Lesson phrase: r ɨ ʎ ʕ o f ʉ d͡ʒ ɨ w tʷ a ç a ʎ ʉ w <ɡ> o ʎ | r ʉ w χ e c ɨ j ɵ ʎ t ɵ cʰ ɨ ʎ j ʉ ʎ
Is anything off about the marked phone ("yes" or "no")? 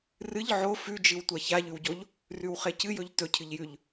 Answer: yes